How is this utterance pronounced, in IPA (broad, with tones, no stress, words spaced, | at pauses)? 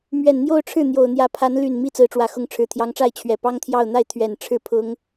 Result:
mɥɛ˨˩nn̪jo˥˧ʊ̯ʈ͡ʂʰɻ̩˥˩ n̪jo˨˩ʊ̯n̪jä˧˥pʰa˧˥n ly˨˩n mi˥˩t͡sɹ̩˧˥ʈ͡ʂwä˨˩ xʊ˧˥ŋʈ͡ʂʰɻ̩˨˩t̪ʰjɑ˧˥ŋʈ͡ʂa˥˩ɪ̯ t͡ɕʰɥɛ˨˩ pɑ˥ŋt̪ʰjɑ˥˧ʊ̯n̪a˥˩ɪ̯ t̪ʰɥɛ˨˩n ʈ͡ʂʰɻ̩˥˩pʰʊ˥ŋ